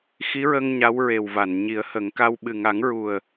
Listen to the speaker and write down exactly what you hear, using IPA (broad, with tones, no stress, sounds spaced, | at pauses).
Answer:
x i˧˥ ɹ ə˧ ŋ ɲ a˧˥ w ɹ e˨˩ w v a˨˩˨ n ɲ i˨˩˦ ə̯ h ə˨˩˦ ŋ k a˧ w ɓ ɨ˨˩ ŋ a˨˩˦ ŋ ɹ u˨˩ ə̯